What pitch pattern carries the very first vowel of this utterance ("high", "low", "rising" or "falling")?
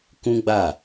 high